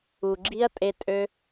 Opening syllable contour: low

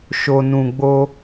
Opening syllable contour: low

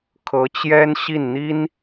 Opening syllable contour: rising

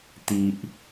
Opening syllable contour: low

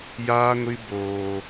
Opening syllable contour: high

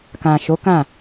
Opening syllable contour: low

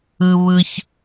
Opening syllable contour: high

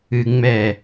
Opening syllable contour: low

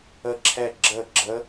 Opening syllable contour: falling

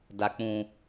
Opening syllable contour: low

